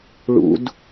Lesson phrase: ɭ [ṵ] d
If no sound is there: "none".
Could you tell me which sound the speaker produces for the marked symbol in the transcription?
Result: ṵ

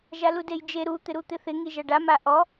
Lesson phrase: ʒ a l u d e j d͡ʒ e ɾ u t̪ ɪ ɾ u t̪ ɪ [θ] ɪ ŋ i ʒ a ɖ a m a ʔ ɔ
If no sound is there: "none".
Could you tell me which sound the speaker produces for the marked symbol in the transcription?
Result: θ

